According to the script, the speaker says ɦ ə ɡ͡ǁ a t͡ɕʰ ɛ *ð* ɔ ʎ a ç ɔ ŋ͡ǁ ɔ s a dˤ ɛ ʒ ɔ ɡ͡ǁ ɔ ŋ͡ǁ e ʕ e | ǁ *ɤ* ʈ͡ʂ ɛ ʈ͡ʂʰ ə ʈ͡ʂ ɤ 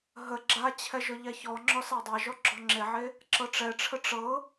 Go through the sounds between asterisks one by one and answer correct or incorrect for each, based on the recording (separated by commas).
incorrect, correct